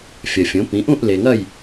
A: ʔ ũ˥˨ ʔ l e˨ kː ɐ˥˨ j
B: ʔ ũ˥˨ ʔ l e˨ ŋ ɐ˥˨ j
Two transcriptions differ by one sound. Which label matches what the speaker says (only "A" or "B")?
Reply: B